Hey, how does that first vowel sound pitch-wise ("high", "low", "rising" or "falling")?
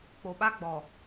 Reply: low